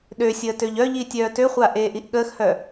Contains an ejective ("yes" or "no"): no